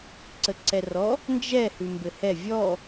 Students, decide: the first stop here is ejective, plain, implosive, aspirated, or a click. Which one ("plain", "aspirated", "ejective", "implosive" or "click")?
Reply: click